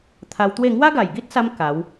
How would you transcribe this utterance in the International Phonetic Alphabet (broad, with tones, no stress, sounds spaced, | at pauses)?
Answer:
t̪ʰ a˧ w t̪ w e˥˧ ŋ w a˦ ɡ a˨˩ j ɡ i˦ t̚ s a˧ m k a˨˦ w